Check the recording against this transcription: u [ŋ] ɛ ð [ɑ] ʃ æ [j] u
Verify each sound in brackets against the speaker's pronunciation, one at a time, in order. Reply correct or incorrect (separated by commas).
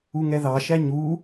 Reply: correct, correct, incorrect